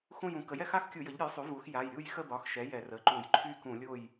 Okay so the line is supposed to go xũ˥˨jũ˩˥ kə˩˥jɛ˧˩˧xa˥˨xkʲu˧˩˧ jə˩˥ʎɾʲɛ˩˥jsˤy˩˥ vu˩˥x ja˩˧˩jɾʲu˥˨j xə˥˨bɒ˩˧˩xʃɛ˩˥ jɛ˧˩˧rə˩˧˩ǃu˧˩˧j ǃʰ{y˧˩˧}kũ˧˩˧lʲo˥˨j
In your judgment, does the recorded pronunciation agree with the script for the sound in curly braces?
no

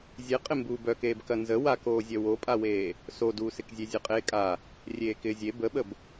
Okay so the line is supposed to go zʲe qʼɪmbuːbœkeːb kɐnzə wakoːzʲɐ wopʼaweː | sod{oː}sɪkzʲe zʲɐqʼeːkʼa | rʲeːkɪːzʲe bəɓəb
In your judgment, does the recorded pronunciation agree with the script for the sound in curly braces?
no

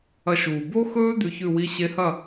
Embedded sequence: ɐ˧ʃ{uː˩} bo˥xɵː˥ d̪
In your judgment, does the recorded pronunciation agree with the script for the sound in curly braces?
yes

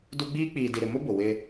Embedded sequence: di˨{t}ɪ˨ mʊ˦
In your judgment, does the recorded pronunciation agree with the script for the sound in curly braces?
no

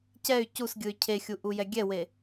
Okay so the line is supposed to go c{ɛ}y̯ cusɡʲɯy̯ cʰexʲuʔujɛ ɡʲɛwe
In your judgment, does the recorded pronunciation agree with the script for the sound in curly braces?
yes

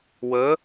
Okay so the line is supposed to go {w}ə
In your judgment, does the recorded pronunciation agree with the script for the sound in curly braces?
yes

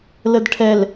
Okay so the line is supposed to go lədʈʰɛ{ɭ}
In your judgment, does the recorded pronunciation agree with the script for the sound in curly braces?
no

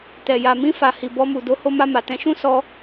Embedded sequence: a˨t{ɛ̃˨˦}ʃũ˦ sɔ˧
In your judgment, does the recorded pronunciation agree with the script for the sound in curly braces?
yes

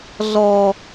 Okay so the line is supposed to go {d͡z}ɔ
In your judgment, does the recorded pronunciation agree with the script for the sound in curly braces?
no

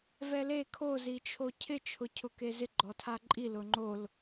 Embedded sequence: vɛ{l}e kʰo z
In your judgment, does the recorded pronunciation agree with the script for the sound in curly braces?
yes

